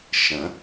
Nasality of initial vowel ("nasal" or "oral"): nasal